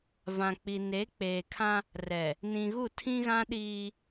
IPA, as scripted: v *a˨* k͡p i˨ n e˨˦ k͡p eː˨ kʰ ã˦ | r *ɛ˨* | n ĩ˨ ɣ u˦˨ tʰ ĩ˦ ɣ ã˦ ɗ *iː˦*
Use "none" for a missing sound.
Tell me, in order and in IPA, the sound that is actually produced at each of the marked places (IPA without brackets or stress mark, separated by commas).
ã˨, ɛ˨, iː˦